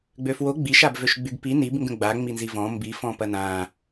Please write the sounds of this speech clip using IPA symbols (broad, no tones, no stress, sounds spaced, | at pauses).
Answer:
ɡ͡b ø f w o ɡ͡b i ʃ a b v ø ʃ ɡ͡b y ɡ p i n i b ŋ ɡ ə̃ ɡ͡b a ŋ͡m i n z i v ɔ̃ m b i f ɔ̃ p ɐ n ã